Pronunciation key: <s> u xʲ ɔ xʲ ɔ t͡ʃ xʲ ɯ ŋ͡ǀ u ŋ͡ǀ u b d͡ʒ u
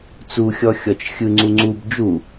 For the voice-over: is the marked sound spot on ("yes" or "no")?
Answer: no